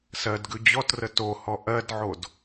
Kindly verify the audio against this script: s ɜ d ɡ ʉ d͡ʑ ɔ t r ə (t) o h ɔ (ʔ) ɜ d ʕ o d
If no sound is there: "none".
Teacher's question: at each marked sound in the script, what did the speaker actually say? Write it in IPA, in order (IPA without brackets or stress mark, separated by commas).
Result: t, ʔ